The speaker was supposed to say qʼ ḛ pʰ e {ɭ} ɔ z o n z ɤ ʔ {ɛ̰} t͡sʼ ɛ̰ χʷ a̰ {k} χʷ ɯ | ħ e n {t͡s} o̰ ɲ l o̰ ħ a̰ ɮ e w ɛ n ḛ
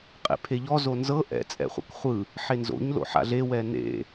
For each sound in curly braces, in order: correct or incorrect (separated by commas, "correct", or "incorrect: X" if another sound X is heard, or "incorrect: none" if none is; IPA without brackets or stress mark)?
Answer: incorrect: ʎ, correct, correct, incorrect: z